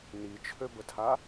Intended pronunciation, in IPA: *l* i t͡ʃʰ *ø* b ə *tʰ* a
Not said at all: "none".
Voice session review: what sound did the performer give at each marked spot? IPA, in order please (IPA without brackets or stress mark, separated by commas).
n, ø, tʰ